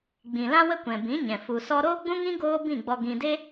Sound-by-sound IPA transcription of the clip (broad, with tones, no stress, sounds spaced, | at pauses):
ɡ͡b ĩ˨ l ã˦ w ə˦ kʷ ɛ̃˨ b ĩ˨˦ ɲ ɛ̃˨ f u˨ s ɔ˧ ɾ oː˦ ɡ͡b ũ˦ ŋ ĩ˦ ɡ oː˦ b ĩ˦˨ ɡ͡b ɔ˧ ɡ ĩ˧ d e˦